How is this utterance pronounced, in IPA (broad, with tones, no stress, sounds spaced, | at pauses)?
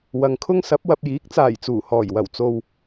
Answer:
w ɐ˨ ŋ kʰ ʊ˥ ŋ s ɐ˨˥ p̚ w ɐ˧ p̚ j iː˨˥ k̚ t͡s aː˨˩ j t͡s uː˨˩ h ɔː˨˩ j w ɐ˨˩ w t͡s o˨ w